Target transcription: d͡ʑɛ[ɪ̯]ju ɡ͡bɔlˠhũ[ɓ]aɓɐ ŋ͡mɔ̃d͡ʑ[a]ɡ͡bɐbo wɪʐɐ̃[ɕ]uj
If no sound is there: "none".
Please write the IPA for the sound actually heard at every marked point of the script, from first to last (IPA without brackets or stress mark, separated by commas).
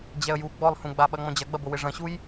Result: ə̯, ɡ͡b, ɐ, ɕ